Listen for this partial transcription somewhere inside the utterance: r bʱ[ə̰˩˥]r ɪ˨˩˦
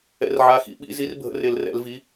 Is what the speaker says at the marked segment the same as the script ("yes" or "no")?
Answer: yes